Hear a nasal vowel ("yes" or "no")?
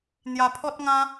yes